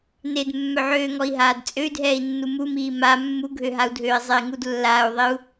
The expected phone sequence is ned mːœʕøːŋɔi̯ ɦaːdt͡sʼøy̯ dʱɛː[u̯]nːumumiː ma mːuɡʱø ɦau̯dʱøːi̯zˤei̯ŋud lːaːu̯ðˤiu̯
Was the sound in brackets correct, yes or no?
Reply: no